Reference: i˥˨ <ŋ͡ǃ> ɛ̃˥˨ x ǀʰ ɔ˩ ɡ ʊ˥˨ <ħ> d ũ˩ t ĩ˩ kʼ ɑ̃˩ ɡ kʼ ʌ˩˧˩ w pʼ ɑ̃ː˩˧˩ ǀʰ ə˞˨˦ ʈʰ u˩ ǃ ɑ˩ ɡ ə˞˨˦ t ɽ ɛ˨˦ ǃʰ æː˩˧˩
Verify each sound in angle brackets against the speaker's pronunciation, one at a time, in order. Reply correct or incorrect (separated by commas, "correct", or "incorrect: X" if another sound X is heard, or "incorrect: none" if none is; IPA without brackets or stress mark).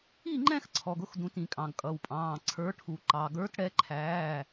correct, incorrect: x